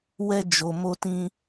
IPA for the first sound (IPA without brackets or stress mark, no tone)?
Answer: w